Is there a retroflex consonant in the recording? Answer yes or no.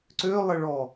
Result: yes